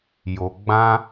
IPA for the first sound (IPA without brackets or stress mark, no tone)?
j